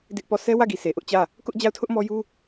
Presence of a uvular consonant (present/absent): absent